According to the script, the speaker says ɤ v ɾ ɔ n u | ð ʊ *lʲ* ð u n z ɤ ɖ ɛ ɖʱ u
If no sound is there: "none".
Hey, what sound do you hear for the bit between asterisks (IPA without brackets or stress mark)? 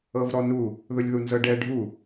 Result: lʲ